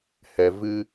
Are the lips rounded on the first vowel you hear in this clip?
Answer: no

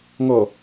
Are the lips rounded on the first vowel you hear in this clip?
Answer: yes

